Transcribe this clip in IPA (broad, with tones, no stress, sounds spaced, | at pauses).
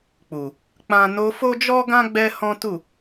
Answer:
k͡p u˨ | k͡p ã˦ n o˧ f o˦ d͡ʒ ɔ˦ ɡ ã˦ ɡ͡b ɛ˦ h ɔ̃˦ t u˦˨